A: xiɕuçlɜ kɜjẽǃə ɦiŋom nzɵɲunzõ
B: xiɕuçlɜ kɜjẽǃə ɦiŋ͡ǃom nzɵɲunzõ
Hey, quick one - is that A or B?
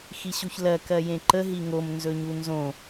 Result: A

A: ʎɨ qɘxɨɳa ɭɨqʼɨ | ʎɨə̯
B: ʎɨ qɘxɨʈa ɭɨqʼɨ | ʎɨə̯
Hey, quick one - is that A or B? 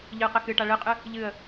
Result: B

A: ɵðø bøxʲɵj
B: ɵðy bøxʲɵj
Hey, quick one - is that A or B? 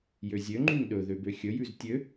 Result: A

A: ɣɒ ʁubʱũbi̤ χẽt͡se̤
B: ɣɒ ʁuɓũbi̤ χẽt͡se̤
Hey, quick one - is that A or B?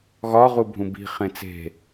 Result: A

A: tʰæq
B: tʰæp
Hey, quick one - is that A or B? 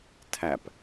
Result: B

